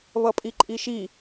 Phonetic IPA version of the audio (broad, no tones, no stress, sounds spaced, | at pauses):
β ʌ pʼ i ǃʼ i ʃ i